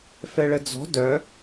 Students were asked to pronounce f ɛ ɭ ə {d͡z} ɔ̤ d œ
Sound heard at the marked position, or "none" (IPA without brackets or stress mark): d͡z